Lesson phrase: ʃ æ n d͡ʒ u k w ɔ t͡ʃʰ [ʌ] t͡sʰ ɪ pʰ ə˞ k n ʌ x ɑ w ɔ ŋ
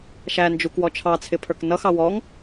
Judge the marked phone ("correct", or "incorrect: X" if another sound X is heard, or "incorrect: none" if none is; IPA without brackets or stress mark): incorrect: ɑ